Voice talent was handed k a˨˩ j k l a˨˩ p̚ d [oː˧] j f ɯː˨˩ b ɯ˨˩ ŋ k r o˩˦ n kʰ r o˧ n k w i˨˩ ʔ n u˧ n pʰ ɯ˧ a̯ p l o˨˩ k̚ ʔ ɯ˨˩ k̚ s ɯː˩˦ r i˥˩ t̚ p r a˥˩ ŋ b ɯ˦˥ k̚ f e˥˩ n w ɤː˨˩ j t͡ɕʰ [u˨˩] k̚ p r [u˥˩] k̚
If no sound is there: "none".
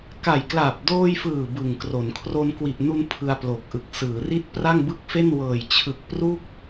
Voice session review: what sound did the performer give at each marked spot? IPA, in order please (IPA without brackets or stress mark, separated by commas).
oː˧, ɯ˨˩, u˥˩